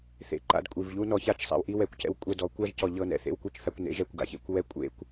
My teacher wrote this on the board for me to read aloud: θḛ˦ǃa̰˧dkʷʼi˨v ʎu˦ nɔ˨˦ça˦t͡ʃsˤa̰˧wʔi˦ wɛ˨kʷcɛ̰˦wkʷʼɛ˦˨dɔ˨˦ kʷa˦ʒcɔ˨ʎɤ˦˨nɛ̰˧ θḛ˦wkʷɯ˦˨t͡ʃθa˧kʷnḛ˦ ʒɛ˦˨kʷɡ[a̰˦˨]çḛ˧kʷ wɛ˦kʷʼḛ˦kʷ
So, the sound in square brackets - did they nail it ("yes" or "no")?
no